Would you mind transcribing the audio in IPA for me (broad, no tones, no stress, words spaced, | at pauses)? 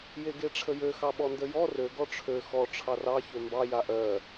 jeɡeʈ͡ʂʰəjø xɑɓɔndəjɔ rø ɡɔʈ͡ʂʰø xɔ ʈ͡ʂʰɑrɑ çømbɑ jaʔɜ